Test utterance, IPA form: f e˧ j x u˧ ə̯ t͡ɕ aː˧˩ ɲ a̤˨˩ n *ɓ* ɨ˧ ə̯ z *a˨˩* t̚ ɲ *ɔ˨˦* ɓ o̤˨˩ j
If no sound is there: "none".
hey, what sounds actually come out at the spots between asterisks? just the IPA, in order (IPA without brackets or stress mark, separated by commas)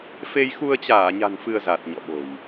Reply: f, a˨˩, ɔ̰˧˨